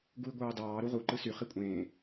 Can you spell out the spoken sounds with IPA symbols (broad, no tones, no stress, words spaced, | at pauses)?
ɡui̯ɡʷɑːdɑː ɾuʁu ǃɯsy χikʷʼẽː